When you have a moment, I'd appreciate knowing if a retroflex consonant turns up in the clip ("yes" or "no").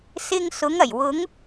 no